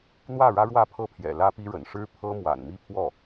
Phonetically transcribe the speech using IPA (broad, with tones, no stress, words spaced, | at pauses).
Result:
n̪wä˥˩ɻä˥ɻwä˥˧ pʰɤ˥˩pʰjɛ̰˨˩lä˥pi˥ ɻə̰˨˩nʂɻ̩˥pʰɤ˥ mwa̰˨˩nmi˥˧pʰwɔ˥˩